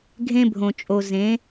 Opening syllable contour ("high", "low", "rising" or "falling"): high